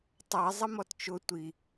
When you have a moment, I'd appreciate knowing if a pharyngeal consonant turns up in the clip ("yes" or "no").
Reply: no